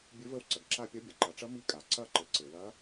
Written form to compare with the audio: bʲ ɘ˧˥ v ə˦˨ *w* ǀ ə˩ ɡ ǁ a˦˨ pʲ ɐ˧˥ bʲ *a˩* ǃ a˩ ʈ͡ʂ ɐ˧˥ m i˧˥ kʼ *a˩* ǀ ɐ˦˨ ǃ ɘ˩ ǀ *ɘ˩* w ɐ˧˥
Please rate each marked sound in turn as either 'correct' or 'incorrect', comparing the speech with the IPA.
correct, incorrect: ɐ˩, correct, correct

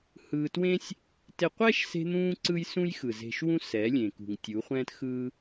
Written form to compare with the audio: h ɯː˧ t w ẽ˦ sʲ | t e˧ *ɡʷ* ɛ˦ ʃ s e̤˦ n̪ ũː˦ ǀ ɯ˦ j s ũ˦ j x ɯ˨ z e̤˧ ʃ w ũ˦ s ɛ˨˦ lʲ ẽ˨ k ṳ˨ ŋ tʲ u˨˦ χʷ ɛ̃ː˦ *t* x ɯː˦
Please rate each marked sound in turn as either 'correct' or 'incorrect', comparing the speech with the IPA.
incorrect: qʷ, correct

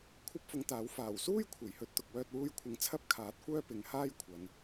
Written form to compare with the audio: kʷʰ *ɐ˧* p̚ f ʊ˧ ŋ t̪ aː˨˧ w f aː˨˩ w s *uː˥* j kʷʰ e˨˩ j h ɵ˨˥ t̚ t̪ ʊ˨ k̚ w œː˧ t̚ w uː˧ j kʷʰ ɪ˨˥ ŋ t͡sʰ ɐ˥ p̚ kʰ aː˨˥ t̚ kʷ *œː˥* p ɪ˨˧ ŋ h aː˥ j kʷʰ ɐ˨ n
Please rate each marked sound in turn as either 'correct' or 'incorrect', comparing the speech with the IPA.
incorrect: ɐ˥, correct, correct

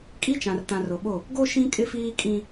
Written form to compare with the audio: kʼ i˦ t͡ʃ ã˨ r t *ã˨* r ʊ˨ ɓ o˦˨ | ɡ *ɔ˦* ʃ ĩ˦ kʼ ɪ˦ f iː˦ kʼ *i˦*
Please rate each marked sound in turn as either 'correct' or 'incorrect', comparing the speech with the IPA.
correct, incorrect: o˦, incorrect: ĩ˦

